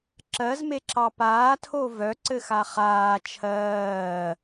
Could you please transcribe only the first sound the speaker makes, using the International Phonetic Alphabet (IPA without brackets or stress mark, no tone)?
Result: ǁ